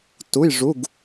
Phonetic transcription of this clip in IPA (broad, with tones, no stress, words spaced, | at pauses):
tu˧˥˧j ʐu˧˥˧ɡ